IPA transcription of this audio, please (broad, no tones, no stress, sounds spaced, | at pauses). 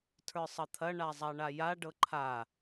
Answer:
tʰ ə˞ sˤ ɐ t̪ʰ ɐ ɳ a zˤ a ɳ a j a ɖ ɤ ǃʰ a